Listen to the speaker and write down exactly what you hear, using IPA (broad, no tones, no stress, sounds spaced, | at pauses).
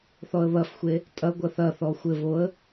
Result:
θ ɔ ə̯ β ɐ f xʷ e | tʼ ɐ ɡʷ ɐ θ ɐ θ ɔ xʷ ɘ v o ə̯